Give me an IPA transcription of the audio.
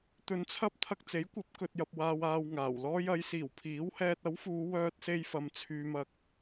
t̪ɵ˧nt͡sʰɐ˥p̚ t̪ʰɐ˧k̚t͡se˨˥jkʷɐ˨˥p̚ kɵ˨t̚jɐ˨p̚waː˨waː˨w ŋaː˨˩wlɔː˥j ɐ˨˧jsiː˨˩w pʰiː˨˥whɛː˧t̚ ɐ˨˥wfuː˨˧ wœː˧t̚se˧jfɐ˨m t͡sʰyː˨mɐ˨k̚

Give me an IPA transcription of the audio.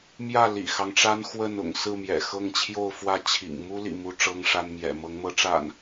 mjä˥˨ lḭ˨˩xɑ˦ŋʈ͡ʂa˦n xwə˥˨nʊ̰˨˩ŋsɹ̩˥˨mjɛ̰˨˩ xɤ˥˨ŋt͡ɕʰjo˥˨ʊ̯fwä˥˨ t͡ɕʰḭ˨˩ŋmu˦lḭ˨˩ mu˦ʈ͡ʂɤ˦ŋʂa˦n mjɛ̰˨˩ mɤ˨˦ŋmɤ˨˦ʈ͡ʂa̰˨˩n

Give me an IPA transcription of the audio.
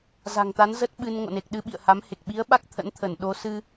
za̤˨˩ŋt̪a˨˦nzə˦˥t̚ ɓɨ˧n ŋo̰˧˨ne˨˩k̚ɗɨ˧ ɓḭ˧˨ə̯ha˨˦mhe˨˩k̚ ɓi˨˦ə̯ɓa˦˥k̚ t̪ʰə̰˧˥nt̪ʰə˧˩n ɗo˨˦sɨ˧

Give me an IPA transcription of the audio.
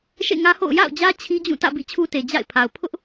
ʃḛ˦˨ŋä˦ho̰˦˨ʊ̯ ja̰˦˨ʊ̯d͡ʑä˦ t͡ɕʰi˦d͡ʑũ˦˨tä̰˦˨ bḭ˦˨t͡ɕʰu˦te˨ d͡ʑa̰˦˨ɪ̯pʰa˨ʊ̯ pʰʊ˦ʔ

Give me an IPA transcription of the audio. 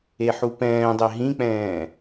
eħupɛ̃ːdˤe ɦĩk͡pɛ̃ː

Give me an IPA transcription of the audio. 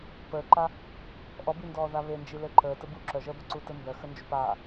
pəːǃa | ʔɔbindɔː ðaβend͡ʒi lɘǃəː təbu ǁœʒəːbə ǀutɘmbœxə nd͡ʒupa

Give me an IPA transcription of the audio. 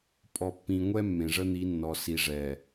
pʼɔ˨pːĩ˨ŋʷɛ˦ mːẽ˨ʐə˦n̪i˨˦nːɔ˨ si˨ ʐɛ˨

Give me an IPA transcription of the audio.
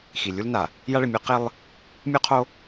xi˨lʲu˦lna˨ | ja˦ɭɪ˨mʲo˦ qe˦lˠ | mʲu˦qʰo˦

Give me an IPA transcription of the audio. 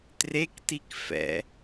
trektik fɛ̰

